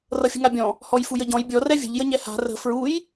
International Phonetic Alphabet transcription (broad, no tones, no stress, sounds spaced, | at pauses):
r ʌ fʲ ə̤ ŋ a bʲ ɔ̃ | h ɔ j f u j ə ɟ ɔ̃ j bʲ ɔ r ɛ vʲ ə̤ ʎ j ə ɲ ɛ h a̤ r ə̤ f ɹ u j